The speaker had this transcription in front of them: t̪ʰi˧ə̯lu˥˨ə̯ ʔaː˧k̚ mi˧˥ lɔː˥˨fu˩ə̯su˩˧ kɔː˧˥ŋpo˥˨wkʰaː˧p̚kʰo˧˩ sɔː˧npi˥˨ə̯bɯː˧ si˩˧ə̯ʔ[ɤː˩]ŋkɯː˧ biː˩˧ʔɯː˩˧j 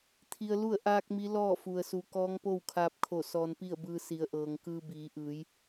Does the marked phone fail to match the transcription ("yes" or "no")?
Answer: no